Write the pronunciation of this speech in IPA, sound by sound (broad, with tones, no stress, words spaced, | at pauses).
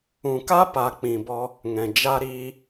ũ˨ka˦ pa˨k͡pĩ˨bɔ˧ | ŋɛ̃˨d͡ʒa˦ɾiː˦